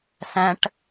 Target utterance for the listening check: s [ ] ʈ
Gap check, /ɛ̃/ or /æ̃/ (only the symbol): æ̃